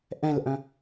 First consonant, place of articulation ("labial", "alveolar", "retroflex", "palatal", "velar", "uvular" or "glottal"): glottal